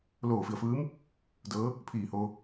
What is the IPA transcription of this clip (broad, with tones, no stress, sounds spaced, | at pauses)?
l oː˧˩ f i˧˩ ə̯ f ɯː˧˥ m | d ɤː˧˥ | pʰ iː˧˩ h oː˧